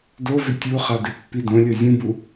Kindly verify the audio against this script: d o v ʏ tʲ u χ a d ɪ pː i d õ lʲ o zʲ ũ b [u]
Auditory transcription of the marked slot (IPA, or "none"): u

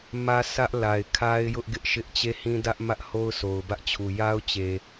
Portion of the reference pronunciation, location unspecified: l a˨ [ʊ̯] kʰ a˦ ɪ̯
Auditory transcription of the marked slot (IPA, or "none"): ɪ̯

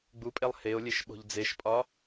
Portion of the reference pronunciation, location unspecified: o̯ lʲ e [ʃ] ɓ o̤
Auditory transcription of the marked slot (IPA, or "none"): ʃ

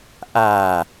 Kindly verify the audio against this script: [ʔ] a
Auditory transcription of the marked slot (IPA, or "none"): ʔ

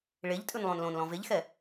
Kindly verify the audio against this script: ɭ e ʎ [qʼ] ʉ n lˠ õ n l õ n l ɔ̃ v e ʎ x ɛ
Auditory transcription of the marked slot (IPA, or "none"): tʼ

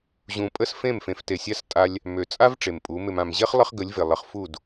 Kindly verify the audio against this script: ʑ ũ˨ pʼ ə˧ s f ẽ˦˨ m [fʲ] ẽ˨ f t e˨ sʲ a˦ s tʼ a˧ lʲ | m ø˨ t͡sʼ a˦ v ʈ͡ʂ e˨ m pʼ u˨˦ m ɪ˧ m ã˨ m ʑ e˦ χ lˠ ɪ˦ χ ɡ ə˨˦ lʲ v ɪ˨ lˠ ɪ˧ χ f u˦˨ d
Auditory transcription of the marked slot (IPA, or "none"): f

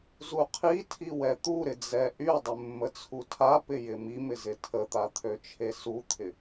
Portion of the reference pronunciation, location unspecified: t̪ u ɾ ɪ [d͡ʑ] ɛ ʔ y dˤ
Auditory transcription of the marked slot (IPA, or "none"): d͡z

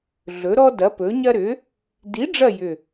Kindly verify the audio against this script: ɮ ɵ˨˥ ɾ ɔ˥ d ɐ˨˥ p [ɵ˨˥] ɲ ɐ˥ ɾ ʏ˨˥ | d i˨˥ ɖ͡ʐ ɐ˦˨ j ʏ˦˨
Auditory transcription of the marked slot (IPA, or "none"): ɵ˨˥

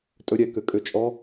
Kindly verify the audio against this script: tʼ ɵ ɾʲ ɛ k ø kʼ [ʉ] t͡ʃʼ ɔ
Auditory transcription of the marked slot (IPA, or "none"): ø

